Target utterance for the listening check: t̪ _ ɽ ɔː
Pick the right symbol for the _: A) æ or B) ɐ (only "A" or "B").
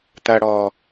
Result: B